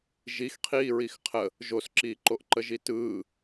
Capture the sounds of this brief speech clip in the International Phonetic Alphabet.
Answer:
ʒixqʰiːɹix qʰə | ʒosǁiːǃoʔ ǃəʒitɯː

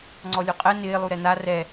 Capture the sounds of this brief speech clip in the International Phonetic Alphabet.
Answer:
ŋ͡ǀɔlʲuqʼɛ nɪːlˠu ɾɛna rɛ

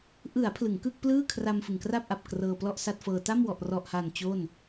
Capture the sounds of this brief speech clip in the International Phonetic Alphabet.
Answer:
ʔɯ˩˦a̯ pʰlɯ˩˦ŋkɯ˥˩k̚plɯː˥˩kʰra˧m fɯ˨˩ŋkra˥˩p̚ʔa˨˩p̚ krɤː˧plɔ˥˩ʔsa˥˩t̚fɤː˧ ta˥˩mwɔ˨˩ʔrɔ˨˩ʔha˨˩n t͡ɕo˥˩n

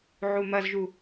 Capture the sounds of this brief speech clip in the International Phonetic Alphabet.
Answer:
ʕumɐzʒu

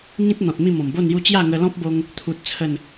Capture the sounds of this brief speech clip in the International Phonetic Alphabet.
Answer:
ŋĩ˦t̚ n̪ɔ̃˨t̚mĩ˥˧ mɔ̃˨˩mbo˥˧nju˥˧ t͡ɕja˥˧ŋə˧lɔ̃˦p̚bo˧ŋ | t̪ʰu˦t̚t͡sʰə˥˧n

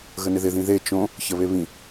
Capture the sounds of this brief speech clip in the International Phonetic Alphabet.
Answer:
ɣənɪðɪ ðĩðe t͡ʃõ | çəβeβĩ

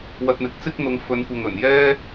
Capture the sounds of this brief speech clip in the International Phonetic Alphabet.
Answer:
wɐ˧t̚n̪ɪ˨˥k̚t͡sɪ˥k̚n̪ʊ˨˧ŋ fɵ˨˧nkʷɐ˨ŋɵ˨˩n jɛː˥

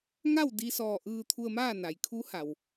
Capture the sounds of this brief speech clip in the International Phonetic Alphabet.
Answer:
ŋa˥˨wdi˧sɔː˧˩ ʔɯː˧t̪ʰu˧ə̯maː˥˨ na˩jkʰu˧˥ha˩w

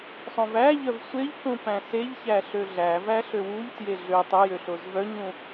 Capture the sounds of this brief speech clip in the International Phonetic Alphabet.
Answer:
sˤõvæʎœv sʷeʎkũ pæ̃seʎçæ ɬøɮævæ ɬøwuʎtje ɮø tˤɵjø ɬozvœɲũ

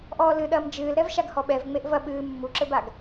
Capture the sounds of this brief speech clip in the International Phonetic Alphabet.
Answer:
ʔɔːlɨɗɐːm d͡ʒɨːlɾɛv ʃaɡhɔɓɛv ŋ͡meʔvɐ ɓɨː mːuǁɘbaɡ

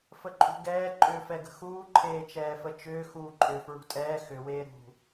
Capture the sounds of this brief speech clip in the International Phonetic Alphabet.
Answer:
fəǃʼṳɡɛː ǃʼʏːfɛɡə̤xuː ǃʰeːt͡ʃɛːfət͡ʃʏː xuːǃʼʏ fɹṳtʼɛː xʏ weːɾṳ

